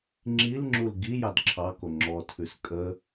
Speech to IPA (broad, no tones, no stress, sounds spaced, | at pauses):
ŋ͡ǁ i l ŋ͡ǁ u l ɡ i j ɑ d ǁʰ ɑ k o ŋ͡ǁ ɔ tʰ ʉ s kʼ ə